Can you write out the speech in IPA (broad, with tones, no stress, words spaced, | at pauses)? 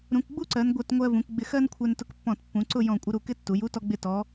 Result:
ɾũ˩˧kɡ͡bu˥ǀɜ˩˧n ɡʷɜ˧˩tŋʷɜ˧vũ˩˧k ɡ͡bɪ˧xɜ˥nkʷʰɛ˧n tʊ˧kpːɔ̃˧˩tpːũ˩˧ ǀʊ˥˧jɔ̃˧˩ kʷʼɪ˧ɾu˧˩ kɪ˥˧tːu˩˧ju˥ tɔ˧ɡ͡bɪ˧˩tɔ˩˧